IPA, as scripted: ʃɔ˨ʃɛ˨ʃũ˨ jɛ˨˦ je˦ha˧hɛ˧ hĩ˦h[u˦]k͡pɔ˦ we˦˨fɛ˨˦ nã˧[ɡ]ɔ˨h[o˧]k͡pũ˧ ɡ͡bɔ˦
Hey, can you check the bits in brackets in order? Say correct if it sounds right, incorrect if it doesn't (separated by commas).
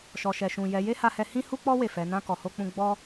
correct, incorrect, correct